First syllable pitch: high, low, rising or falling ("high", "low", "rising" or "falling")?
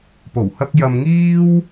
low